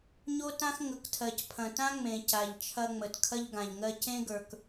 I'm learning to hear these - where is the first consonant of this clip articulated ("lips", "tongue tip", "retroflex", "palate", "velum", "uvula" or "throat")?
palate